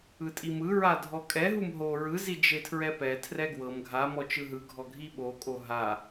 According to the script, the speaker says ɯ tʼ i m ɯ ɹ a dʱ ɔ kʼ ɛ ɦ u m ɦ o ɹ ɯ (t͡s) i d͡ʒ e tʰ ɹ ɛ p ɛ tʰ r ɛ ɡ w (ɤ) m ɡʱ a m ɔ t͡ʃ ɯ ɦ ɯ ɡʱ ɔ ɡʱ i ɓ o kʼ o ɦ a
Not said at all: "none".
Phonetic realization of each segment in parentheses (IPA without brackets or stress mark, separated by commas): z, ɤ